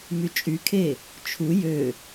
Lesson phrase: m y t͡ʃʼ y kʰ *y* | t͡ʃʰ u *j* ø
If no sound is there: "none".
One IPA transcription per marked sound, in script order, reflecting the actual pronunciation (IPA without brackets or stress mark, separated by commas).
e, j